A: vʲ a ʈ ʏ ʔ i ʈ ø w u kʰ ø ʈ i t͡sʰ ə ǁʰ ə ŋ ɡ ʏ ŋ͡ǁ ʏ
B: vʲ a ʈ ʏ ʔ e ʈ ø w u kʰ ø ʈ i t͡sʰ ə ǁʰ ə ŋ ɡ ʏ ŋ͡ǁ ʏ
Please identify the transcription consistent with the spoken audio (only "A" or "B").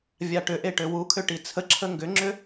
B